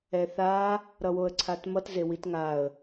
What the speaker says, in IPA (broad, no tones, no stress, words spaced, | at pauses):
ɛθa | ɾʌwoə̯ǀʰatmʌt zewitŋaə̯